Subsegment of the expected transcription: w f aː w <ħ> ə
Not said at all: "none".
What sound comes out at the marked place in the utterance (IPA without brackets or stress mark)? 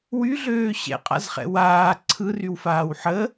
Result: ħ